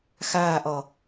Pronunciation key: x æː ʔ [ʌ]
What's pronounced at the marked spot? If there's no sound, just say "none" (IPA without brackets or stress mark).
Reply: ʌ